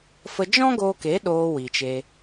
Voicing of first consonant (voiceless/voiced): voiceless